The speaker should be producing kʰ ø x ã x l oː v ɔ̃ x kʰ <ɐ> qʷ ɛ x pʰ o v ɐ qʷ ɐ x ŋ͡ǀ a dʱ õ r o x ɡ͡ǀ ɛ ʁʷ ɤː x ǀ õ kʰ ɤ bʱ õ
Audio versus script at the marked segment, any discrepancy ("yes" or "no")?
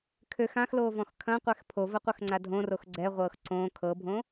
yes